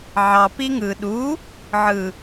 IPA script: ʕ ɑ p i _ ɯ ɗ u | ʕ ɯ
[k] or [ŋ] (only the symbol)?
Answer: ŋ